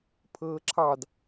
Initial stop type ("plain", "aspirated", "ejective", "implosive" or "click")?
aspirated